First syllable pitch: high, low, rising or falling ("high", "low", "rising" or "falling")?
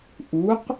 rising